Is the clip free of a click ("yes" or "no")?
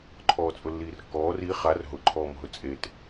no